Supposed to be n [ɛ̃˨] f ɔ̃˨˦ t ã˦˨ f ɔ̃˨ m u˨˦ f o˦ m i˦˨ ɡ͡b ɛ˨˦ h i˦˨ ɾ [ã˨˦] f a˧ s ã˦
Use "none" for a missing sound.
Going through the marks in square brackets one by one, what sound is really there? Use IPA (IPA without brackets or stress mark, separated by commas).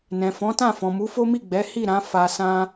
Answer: ɛ̃˨, ã˨˦